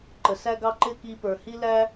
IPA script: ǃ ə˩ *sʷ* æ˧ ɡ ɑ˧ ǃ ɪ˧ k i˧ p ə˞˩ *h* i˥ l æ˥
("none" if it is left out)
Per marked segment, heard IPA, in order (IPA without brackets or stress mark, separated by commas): s, h